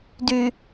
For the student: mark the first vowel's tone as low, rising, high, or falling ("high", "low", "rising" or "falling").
low